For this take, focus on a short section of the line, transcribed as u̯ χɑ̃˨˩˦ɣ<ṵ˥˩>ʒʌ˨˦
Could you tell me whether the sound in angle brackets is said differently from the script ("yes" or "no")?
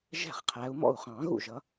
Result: no